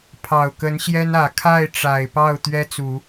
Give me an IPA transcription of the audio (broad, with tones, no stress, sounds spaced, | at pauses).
pʰ ɑ˨˩ ʊ̯ k ə˧˥ n ɕ j ɛ˥ n ä˨˩ kʰ a˥˩ ɪ̯ ʈ͡ʂ a˨˩ ɪ̯ p ɑ˥˩ ʊ̯ t̪ ɥ ɛ˥ t͡s u˨˩˦